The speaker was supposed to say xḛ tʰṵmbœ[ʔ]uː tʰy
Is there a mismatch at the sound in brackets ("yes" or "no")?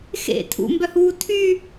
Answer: yes